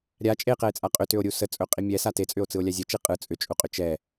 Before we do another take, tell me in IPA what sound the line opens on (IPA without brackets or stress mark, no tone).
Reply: ɾʲ